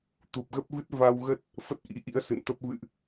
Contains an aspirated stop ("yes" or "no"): no